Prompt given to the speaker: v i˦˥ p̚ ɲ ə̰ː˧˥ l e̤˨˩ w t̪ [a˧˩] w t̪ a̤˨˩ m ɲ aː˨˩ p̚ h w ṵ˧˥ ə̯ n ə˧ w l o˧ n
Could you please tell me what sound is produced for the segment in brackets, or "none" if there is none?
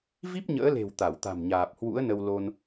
a˧˩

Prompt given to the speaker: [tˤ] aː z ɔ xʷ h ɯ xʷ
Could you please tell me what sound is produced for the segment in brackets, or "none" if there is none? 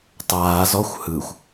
tˤ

